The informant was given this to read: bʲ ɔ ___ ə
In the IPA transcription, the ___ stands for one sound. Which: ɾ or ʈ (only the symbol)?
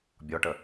ʈ